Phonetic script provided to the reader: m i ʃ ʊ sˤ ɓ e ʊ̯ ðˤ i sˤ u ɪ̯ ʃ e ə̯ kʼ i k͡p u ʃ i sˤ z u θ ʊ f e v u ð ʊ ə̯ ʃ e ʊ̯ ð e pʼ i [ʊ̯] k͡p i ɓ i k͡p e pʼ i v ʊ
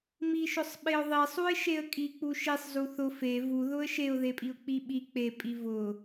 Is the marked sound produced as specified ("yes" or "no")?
yes